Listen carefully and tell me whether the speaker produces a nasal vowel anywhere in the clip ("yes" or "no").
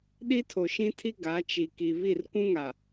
yes